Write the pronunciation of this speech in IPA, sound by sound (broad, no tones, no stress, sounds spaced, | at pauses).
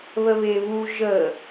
β ə β e β u ʒ ə